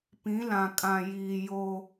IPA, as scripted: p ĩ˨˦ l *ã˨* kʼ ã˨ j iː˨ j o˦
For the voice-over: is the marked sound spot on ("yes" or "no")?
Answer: yes